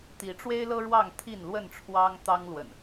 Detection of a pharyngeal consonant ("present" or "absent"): absent